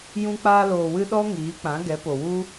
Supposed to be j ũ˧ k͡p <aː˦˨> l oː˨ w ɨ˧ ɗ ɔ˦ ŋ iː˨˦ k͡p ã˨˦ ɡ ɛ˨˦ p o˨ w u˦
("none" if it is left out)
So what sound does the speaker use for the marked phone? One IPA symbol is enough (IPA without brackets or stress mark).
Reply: aː˧